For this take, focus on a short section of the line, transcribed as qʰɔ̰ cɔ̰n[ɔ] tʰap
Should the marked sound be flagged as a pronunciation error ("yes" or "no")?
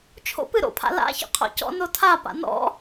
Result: yes